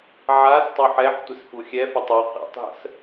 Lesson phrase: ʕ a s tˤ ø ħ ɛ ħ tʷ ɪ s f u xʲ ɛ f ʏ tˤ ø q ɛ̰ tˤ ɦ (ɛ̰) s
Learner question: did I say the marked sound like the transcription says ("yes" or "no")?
no